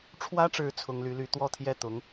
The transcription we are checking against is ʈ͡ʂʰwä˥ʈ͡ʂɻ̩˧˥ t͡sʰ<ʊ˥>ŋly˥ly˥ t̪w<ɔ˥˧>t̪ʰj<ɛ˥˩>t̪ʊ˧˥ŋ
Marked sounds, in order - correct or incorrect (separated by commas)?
correct, correct, correct